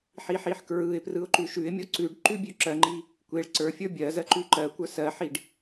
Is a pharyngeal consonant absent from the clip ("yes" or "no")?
no